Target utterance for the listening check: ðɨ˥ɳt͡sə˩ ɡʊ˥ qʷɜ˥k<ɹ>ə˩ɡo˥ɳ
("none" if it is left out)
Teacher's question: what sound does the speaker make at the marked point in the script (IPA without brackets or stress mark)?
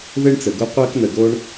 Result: n